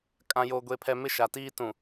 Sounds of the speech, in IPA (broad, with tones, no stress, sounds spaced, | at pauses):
kʼ ã˦ j o˦ ɡʷ e˦ pʰ ɛ˦ m ɪ˦ ʃ a˨ t iː˦ t ũ˨